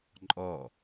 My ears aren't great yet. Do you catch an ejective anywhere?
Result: yes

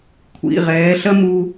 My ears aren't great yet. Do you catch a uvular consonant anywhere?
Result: yes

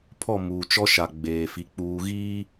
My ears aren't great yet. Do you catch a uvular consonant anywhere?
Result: no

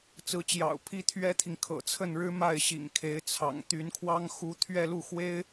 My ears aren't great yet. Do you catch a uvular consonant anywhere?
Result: no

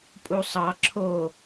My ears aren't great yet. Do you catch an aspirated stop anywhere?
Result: yes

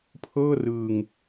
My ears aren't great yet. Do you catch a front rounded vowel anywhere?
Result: no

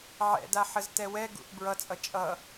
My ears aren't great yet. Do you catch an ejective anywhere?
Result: yes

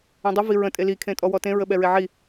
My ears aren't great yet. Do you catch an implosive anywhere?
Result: yes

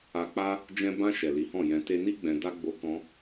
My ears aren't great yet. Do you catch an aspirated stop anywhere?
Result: no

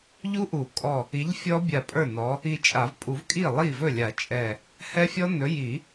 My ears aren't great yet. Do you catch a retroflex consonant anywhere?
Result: no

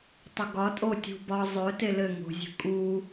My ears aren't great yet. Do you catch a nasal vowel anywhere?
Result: no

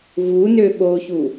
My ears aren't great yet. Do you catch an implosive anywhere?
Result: yes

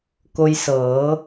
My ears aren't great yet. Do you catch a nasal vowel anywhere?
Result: no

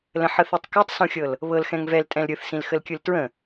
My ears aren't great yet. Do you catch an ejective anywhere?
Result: yes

